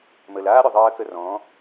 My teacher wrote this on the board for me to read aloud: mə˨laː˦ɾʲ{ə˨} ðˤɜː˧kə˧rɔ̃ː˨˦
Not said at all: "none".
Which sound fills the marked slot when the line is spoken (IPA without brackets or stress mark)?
ʊ˨